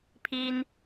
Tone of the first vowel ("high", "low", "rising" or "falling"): high